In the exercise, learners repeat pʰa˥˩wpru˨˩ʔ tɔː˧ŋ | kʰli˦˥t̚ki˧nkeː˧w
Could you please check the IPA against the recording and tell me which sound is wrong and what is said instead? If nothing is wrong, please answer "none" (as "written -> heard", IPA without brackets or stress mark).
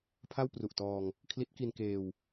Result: none